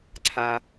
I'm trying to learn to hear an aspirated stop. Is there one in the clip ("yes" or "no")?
yes